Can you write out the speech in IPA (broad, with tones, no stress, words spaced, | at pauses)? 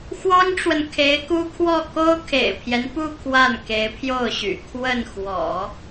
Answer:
xwɑ˥ŋʈ͡ʂwə˨n kʰe˧˥ɪ̯ku˥kʰwɔ˥˩ ko˥ʊ̯kʰḛ˨˩ɪ̯pʰjɛ˦npu˥˧ kʰwa˥˩nke˧˥ɪ̯pʰjo˥˩ʊ̯ɕy̰˨˩ kʰwə˥˩n xwɔ̰˨˩˦